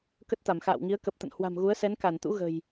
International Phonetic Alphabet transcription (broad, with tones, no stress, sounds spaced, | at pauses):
k ə˦˥ t̚ t̪ a˧˩ m x a̰ː˧˨ w ŋ i˨˦ ə̯ k ə˨˩ p̚ t̪ ə̰˧˨ n h w a̤˨˩ m ɣ u˨˦ ə̯ s ɛ˨˦ n k a˧˩ n t̪ ṵ˧˥ ɣ ə̤˨˩ j